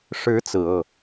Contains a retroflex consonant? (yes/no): yes